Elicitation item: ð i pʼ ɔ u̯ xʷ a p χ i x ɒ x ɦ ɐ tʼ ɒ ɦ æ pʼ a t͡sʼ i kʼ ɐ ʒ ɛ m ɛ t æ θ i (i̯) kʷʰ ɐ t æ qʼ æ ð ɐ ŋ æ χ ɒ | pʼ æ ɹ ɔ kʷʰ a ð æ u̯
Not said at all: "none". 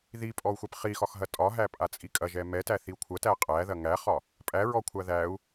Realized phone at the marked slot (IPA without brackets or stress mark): u̯